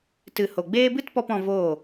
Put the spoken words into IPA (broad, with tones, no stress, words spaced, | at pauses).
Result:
tɨ˨ho˨ɡ͡beː˦ bɨ˦tpɔ˧p ɔ̃˧voː˦˨